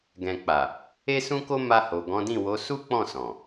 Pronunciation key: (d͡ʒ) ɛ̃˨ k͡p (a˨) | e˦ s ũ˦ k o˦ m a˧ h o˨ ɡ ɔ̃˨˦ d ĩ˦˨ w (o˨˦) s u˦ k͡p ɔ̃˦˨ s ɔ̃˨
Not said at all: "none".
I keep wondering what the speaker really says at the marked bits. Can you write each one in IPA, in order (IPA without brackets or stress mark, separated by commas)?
ɡ, a˨, o˨˦